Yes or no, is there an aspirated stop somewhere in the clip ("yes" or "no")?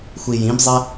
no